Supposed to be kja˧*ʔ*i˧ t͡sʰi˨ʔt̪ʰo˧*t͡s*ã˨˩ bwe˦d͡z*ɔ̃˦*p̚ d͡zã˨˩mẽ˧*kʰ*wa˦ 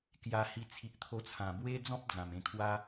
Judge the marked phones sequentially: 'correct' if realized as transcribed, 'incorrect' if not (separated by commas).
incorrect, incorrect, correct, correct